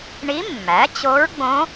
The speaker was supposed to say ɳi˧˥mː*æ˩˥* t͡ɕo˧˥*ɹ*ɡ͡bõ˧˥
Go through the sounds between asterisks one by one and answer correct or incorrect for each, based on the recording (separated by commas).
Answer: correct, correct